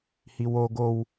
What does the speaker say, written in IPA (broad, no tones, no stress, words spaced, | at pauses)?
hiwo ɡow